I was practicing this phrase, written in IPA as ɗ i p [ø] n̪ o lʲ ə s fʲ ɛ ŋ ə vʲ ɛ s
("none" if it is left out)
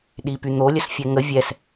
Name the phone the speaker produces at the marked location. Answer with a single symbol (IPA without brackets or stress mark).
y